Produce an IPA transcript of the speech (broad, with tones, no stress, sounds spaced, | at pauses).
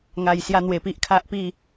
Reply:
ŋ a˨˩ j s j a˧ n̪ w e˨˩ p i˦ ʔ kʰ a˦ ʔ p i˥˧